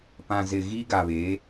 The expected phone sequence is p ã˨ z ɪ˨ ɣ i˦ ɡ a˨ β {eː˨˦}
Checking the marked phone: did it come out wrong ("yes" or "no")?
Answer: no